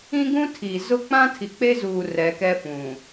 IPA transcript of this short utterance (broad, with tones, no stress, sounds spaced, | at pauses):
ĩ˦ ɡ ũ˦ tʰ iː˨ z ʊ˦ k͡p ã˦ tʰ i˨ k͡p e˦ z uː˨ r ɛ˨˦ k ɛ˦ f ũ˨